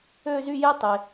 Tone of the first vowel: high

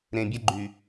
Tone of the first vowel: low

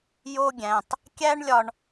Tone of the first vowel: high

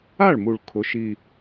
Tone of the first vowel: falling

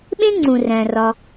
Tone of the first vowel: high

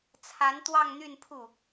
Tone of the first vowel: rising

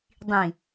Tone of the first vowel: low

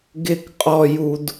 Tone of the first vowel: high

